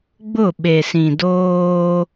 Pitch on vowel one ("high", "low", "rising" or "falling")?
falling